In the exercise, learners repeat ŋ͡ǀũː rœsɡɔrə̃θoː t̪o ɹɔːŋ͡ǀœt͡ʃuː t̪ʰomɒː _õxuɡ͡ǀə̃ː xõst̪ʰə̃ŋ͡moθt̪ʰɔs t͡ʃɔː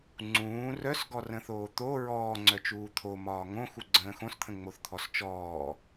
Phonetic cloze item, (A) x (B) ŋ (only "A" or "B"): B